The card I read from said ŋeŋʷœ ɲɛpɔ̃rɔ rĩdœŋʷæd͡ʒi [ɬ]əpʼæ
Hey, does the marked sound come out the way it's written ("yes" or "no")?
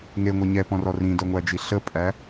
yes